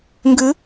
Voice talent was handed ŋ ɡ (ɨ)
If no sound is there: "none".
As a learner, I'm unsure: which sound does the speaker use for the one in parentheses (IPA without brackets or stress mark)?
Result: ɨ